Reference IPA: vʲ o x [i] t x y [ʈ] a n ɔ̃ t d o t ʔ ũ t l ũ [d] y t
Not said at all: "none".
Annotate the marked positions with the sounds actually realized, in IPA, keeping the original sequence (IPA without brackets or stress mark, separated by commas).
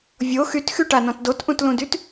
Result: y, ʈ, d